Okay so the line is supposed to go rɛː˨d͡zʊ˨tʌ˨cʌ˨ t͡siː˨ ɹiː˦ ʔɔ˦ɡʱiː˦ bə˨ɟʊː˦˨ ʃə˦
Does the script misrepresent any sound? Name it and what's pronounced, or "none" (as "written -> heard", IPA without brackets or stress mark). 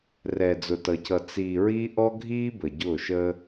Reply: none